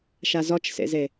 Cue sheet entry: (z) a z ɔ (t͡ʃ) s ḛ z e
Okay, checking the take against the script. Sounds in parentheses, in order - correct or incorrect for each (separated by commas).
incorrect, correct